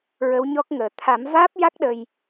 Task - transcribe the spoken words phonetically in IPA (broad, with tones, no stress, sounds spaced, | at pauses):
ɹ ə˧˥ w ɲ ɔ˦˥ k̚ ŋ əː˨˩ t̪ʰ a˨˩˦ m v aː˦˥ p̚ j a˦˥ k̚ ɗ ə˧ j